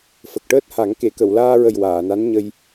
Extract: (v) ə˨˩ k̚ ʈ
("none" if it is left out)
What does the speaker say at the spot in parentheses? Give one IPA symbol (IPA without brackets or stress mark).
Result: f